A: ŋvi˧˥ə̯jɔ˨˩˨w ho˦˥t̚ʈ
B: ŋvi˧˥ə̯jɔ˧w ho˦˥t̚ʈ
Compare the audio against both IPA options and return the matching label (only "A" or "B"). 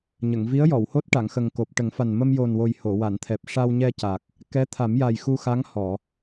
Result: A